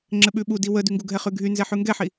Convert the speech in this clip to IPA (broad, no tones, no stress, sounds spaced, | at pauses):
ŋ͡ǁ ɘ ɓ ʉ ɓ u d i w ə d y ŋ ɡ u ɡʱ ɛ χ ʉ ɡʱ y n z ɛ ħ ʉ ŋ ɡ ɛ ħ i